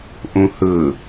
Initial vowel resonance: nasal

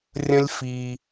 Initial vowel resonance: nasal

